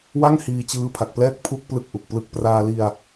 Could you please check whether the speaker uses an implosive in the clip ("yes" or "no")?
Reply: no